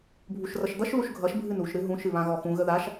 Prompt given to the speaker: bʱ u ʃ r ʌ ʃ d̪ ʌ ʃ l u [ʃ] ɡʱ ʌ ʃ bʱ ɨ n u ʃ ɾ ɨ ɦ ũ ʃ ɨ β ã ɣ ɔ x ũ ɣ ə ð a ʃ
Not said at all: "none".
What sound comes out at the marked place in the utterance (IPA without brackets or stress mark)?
ʃ